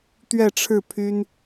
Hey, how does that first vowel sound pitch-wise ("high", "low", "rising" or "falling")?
falling